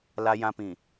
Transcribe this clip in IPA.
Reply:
l a˨ j ã˨ p ĩ˨

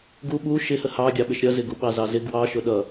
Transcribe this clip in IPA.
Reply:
ɡ u ɓ u ʃ ɪ h ə h ɑ ɡʲ ɑ ɓ ɪ ʃ ɾʲ ʌ z ɪ ɡ u ɓ ɑ z ɑ z ɪ ɡ w ɑ ʃ ʊ ɗ ʌ

